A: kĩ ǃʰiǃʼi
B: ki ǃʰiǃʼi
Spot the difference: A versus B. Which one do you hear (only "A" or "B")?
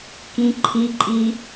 A